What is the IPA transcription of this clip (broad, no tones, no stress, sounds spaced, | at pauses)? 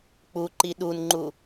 k͡p u ǃ i ɗ u n ŋ͡ǃ u